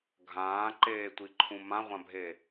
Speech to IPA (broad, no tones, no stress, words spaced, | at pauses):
ɡʱãːǃeːtʷiǃʰũ mãʁʷãbʱe